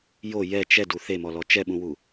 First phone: j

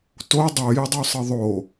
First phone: t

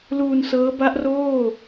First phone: l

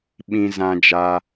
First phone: ɓ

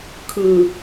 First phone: kʰ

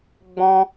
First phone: ɡ͡b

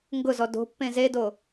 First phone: ŋ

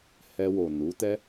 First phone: h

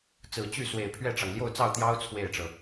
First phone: t͡s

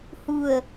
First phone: h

